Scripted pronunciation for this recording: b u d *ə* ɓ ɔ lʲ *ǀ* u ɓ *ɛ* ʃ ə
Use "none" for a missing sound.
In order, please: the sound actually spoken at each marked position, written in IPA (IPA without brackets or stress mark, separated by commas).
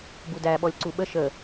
æ, ǀ, ə